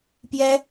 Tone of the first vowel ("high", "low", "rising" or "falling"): high